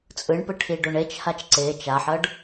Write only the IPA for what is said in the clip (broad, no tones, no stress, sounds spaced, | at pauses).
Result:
t͡sʼ ɯ ɳ p ɯ ʈʰ i ɖ o ɳ e t͡ʃ h a t͡ʃ ǀ e t͡ʃ a ħ ʌ ɖ